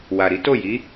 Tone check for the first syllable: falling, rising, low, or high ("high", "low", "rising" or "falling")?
low